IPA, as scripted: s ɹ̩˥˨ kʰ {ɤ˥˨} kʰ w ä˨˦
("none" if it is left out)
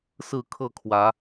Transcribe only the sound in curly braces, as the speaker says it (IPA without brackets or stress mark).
ɤ˥˨